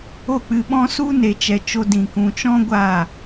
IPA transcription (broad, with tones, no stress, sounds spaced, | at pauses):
o˦˨ k͡p ɨ˧ ɓ ɔ̃˦ s u˦ n e˨ t͡ʃ ɛ˨ t͡ʃ o˧ d ĩ˨ k ũ˨ t͡ʃ ɔ̃˦ ɡʷ a˦˨